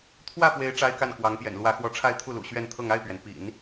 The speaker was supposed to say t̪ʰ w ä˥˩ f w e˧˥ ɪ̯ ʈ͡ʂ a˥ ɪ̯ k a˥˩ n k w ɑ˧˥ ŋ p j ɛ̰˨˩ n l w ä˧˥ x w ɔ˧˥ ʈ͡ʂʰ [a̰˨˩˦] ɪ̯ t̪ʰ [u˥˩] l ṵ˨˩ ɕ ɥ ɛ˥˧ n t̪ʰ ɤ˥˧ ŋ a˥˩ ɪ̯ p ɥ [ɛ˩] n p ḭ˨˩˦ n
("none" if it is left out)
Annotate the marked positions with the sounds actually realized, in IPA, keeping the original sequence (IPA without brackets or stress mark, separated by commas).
a˥˧, u˥˩, ɛ˩